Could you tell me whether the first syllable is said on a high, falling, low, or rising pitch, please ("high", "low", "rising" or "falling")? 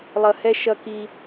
low